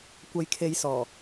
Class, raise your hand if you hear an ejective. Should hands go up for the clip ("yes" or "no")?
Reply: no